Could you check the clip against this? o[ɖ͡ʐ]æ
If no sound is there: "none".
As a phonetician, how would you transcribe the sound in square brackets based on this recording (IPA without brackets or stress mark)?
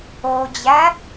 d͡ʑ